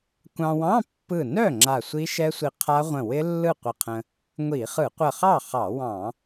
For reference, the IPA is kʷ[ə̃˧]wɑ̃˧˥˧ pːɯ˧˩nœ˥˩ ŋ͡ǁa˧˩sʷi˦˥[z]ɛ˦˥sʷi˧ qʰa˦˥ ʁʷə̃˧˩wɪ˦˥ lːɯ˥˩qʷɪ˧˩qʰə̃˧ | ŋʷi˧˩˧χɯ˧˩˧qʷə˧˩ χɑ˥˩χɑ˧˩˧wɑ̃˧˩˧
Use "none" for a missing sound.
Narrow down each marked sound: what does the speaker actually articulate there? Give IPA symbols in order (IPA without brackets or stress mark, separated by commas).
ɑ̃˧, ʃ